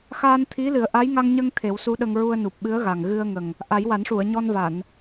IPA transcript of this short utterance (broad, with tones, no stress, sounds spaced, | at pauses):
x aː˧ n t̪ʰ i˧˥ l ɨ˨˩˦ ə̯ ʔ a˧˥ j ŋ a˧ ŋ ɲ ə˧ ŋ t̪ʰ e˨˩˦ w s u˧˥ ɗ ə˧ ŋ ɹ u˧ ə̯ n u˨˩ p̚ ɓ ɨ˧˥ ə̯ ɣ a˨˩ ŋ ɣ ɨ˧ ə̯ ŋ ə˨˩ ŋ | ʔ a˨˩˦ j w a˨˩˦ n ʂ u˨˩˨ ə̯ ɲ ɔ˧ n v a˨˩˨ n